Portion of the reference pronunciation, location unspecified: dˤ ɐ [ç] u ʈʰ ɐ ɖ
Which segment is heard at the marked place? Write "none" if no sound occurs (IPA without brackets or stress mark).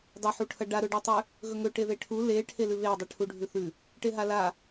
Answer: ħ